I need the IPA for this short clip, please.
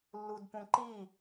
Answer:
lː u d p ũ ǃ i

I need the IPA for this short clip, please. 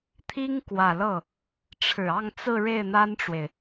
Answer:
t̪ʰ i˥ ŋ k w ä˨˩ l ɤ˥˩ | ʈ͡ʂʰ ɻ̩˨˩ ɑ˥˧ ŋ t͡s ɹ̩˥˧ ɻ e˥˩ ɪ̯ n̪ a˥ n ʈ͡ʂ w e˨ ɪ̯

